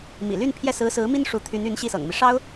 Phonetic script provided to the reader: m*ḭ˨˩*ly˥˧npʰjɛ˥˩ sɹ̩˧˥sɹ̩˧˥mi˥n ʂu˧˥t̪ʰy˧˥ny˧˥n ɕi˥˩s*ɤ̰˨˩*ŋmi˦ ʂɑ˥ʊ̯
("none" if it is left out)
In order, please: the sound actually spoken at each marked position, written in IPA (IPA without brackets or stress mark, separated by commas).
ḭ˨˩, ɤ̰˨˩